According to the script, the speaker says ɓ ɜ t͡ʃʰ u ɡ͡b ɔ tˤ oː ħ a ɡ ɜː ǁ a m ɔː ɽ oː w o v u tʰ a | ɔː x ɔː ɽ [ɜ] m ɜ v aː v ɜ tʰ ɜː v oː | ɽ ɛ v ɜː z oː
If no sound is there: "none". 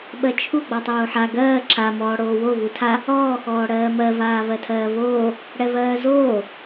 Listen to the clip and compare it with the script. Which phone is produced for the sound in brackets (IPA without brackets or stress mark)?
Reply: ɜː